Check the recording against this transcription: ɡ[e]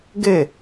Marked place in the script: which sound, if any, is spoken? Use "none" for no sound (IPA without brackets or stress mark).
e